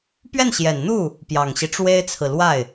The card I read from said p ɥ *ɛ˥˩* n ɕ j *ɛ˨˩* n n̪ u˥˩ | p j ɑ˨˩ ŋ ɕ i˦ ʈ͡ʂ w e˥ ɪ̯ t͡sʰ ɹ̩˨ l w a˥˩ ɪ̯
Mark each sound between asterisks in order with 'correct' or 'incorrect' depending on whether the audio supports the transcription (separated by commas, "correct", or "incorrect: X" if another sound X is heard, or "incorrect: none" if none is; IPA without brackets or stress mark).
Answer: correct, correct